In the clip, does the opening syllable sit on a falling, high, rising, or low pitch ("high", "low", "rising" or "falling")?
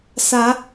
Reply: rising